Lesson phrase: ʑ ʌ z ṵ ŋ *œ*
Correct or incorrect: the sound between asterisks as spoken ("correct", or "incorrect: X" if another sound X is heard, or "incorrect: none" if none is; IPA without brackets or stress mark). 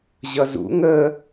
incorrect: ə